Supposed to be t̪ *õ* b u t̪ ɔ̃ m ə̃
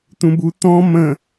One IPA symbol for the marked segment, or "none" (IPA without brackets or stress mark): ũ